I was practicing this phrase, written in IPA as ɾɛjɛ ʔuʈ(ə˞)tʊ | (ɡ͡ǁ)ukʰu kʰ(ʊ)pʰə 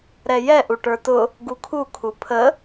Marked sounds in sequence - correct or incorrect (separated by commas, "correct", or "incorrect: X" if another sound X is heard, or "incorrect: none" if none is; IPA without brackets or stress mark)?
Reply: correct, incorrect: ɡ, incorrect: u